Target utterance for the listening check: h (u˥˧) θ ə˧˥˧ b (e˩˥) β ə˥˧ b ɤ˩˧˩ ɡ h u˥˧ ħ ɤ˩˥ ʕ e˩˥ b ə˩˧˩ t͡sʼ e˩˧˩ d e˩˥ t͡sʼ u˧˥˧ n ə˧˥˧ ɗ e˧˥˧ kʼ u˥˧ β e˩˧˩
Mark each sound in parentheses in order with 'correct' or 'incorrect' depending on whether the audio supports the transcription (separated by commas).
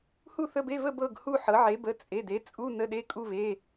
correct, incorrect